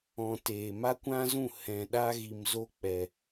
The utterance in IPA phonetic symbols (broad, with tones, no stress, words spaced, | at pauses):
ɔ̃˨ teː˨ma˦kʷã˦zũ˦˨ hɛ̃˨ ɗa˧ɣi˨mzo˧ k͡pɛ˨